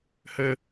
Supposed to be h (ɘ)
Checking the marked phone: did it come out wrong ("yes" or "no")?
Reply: no